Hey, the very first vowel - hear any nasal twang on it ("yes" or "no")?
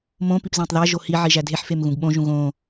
yes